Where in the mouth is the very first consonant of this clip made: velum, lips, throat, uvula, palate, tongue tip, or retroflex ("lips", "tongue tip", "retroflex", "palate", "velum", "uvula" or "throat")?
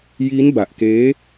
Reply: palate